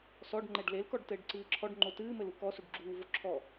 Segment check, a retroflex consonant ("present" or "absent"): present